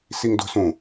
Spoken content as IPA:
siŋdo̤s ũ

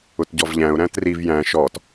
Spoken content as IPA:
ʊtɟɔvʎæ̃ʊ̯ ɾæ̃triv jæ̃ ʃɔt

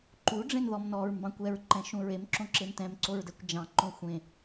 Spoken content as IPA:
ǃu ɖ͡ʐẽnðɔmnɔɹ mbɑ̃kʷɛɹ ǃɛ̃ʃũɹem ǁõǁemtɛ̃m ǀoɹdɛkʷd͡ʒɑ̃ ǃõxʷẽ

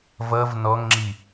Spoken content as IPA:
vʌv nɔŋŋ͡ǁi

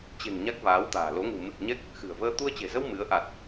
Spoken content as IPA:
t͡ɕe̤˨˩ŋ ɲa˦˥k̚vaː˨˦wt̪a̤ː˨˩ lo˨˦ŋṳ˨˩ mɨ˨˩k̚ ɲɛ˦˥k̚ | xɨ̤˨˩ə̯vəː˧ t̪u˧ə̯t͡ɕe̤˨˩zə˧w mɨ˨˦ə̯ ʔa˨˩t̚

